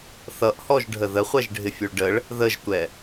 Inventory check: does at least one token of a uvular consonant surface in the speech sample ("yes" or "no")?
yes